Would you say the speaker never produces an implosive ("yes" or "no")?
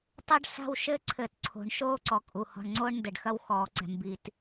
yes